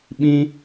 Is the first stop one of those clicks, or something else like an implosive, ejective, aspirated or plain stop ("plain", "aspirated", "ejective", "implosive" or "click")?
implosive